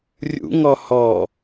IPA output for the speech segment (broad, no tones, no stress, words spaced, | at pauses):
rʲṵŋɔ hɔ